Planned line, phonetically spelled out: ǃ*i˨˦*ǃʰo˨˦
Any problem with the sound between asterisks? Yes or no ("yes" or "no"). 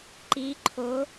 no